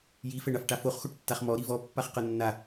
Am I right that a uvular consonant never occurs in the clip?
no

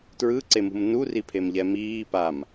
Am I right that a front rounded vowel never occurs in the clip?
yes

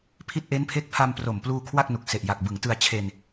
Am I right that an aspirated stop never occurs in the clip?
no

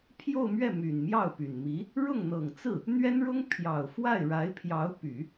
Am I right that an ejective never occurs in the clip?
yes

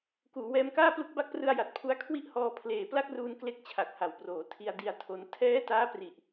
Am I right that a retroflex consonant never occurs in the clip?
yes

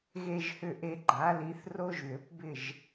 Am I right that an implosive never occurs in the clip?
yes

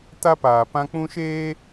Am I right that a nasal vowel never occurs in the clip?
no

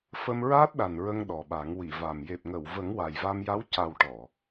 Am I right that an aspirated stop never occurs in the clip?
yes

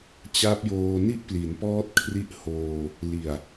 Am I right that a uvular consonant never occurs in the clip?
yes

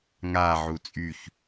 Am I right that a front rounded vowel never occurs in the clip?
no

